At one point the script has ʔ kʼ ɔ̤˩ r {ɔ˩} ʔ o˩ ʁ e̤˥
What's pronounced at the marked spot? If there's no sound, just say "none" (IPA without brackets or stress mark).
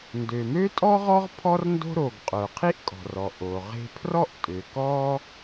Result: ɔ˩